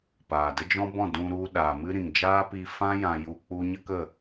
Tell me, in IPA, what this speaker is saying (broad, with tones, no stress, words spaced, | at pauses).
paː˨də˦d͡ʒɔ̃˦bɔ̃˦˨ dũ˧ ɾu˧ɗaː˨ mɨ˦ ɾĩ˨ŋd͡ʒaː˦pi˧ fã˦ jã˧ju˧k͡pu˦ ɲə˦kə˦˨